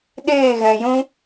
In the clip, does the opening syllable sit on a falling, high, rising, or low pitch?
falling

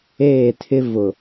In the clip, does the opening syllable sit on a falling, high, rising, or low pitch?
falling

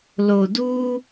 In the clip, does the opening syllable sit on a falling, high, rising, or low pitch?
low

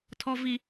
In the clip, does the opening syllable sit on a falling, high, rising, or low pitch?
low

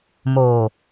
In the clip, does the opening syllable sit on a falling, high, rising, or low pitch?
low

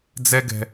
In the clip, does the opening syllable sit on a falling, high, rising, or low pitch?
high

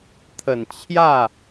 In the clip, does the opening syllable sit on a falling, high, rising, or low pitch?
low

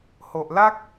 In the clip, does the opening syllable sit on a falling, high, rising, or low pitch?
low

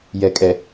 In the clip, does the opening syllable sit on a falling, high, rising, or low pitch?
low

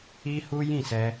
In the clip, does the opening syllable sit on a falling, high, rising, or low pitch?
high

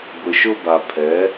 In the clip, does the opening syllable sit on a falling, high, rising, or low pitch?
low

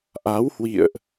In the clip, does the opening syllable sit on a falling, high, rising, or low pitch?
rising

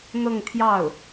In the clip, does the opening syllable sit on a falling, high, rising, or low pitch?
falling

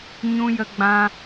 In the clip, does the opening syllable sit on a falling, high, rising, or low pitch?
high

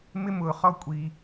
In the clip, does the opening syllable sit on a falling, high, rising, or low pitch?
high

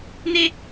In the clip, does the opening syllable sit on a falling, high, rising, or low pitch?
high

